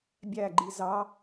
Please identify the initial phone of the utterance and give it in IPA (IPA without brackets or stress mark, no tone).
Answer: bʲ